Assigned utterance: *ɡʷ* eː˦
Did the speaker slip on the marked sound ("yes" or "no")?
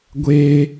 no